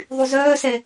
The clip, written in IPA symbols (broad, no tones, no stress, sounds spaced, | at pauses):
ðˤ y z œː s ɛ